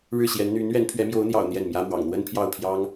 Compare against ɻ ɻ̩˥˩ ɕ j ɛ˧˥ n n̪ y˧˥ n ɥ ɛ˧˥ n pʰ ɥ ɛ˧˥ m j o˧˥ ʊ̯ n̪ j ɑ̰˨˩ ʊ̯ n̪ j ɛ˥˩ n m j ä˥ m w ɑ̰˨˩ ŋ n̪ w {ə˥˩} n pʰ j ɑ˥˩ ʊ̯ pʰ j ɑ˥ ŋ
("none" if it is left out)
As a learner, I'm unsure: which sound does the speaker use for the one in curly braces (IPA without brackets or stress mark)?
ə˥